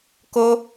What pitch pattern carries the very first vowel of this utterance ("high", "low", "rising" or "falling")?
high